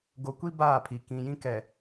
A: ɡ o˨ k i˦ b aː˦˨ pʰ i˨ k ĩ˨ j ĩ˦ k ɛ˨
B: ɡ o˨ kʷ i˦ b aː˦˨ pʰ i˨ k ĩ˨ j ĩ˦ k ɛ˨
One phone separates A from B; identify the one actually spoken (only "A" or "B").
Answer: B